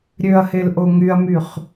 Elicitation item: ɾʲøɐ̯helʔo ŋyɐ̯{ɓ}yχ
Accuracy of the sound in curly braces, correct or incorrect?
incorrect